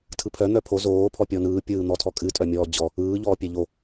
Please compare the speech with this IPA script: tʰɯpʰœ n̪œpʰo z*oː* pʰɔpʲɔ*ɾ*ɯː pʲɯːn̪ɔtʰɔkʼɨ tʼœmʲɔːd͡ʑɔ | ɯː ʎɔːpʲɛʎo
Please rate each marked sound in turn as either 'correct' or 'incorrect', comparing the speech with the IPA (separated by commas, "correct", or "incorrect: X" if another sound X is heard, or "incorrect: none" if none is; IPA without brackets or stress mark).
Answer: correct, incorrect: n